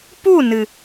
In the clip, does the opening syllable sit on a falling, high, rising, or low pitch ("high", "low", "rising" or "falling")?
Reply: falling